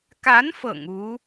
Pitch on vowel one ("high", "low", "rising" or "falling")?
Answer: rising